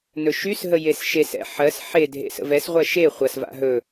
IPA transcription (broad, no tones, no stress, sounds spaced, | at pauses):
n ɵ ʃ y s ɦ ə j e s ʃ e s ɛ̰ ħ ɜ s ħ e dʱ ḛ s ə̰ v ɛ s ʁʷ ɜ ʃ e χʷ ɐ s v a̰ ɦ ɵ